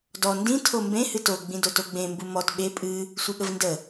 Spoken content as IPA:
d ɔ n d ĩ tʰ o m b ẽ h ɨ t o ɡ͡b ĩ d o t o ɡ͡b ẽ m b u m ɔ t ɓ e pʼ ɨ | sʷ ɨ ɠ ə v n d ə

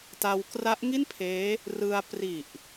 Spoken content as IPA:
t a˧ w k r a˦˥ ʔ ŋ i˥˩ n pʰ eː˦˥ | r ɯ˧ a̯ p r i˨˩ ʔ

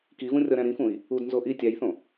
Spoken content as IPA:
k i v ũ rʲ ɒ ɾ æ̃ ɾ ĩ f ũ i̯ | u d n z o ʔ i tʲ æ j θ õ

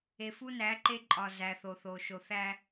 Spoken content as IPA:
e˨ f u˦ n æ˨˦ ǃ e˦ ǃʼ ɒ˨ z æ˨ θ o˨ θ o˨ ʃ o˨ θ æ˦

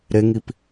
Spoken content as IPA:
ɾ e ŋ i p

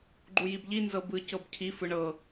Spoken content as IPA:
ɡ͡ǃ u j i b ʎ i n z ɤ b ɯ c ɤ b cʰ i f ɯ ɳ ɤ

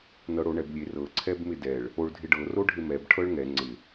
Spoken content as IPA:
n ɤ ɽ o ɳ ɛ b lʲ e r ɤ ǀʰ ɛ b m ɪ d ɛ ɭ | o ɭ dʱ ɪ ɖ ɤ r o ɖʱ ɪ m ɛ b ʈʰ ɤ ɭ ŋ ɛ ŋ͡ǀ ɪ

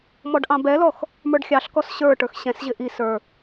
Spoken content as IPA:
m ɔ ɖ ʔ ɑ̃ b ɛ l ɔ x | m ə˞ ɖ xʲ ɑ ɬ k ɔ s ɕ ə˞ ʈ ə˞ x ɕ ɛ̃ s ʑ ɪ ʔ i s ə˞

